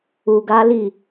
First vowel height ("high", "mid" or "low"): high